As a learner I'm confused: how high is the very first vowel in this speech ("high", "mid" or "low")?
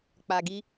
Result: low